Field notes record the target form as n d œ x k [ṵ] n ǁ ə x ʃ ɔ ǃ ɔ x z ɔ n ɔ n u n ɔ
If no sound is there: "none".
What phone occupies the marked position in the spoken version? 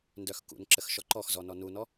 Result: ṵ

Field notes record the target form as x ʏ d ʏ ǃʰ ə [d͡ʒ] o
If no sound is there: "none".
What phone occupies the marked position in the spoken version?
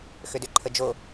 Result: d͡ʒ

